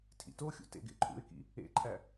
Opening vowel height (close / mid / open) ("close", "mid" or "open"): close